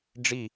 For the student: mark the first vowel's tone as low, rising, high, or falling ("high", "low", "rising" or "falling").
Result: falling